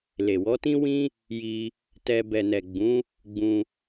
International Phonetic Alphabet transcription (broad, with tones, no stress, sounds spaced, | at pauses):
l e˨ w ɔ˨˦ t ĩ˦ w ĩ˧ | j i˧ | t ɛ˧ b ɛ˨ n ɛ˨ ɡ͡b ũ˨˦ | ɡ͡b ũ˧